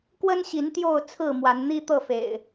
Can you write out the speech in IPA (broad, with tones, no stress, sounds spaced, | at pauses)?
k w ə˦ n ɕ i˨˦ n t̪ j o˥˨ ʊ̯ t͡sʰ ɹ̩˥˨ m w a˨˦ n n̪ i˦ t̪ ɤ˥˨ f ḛ˨˩ ɪ̯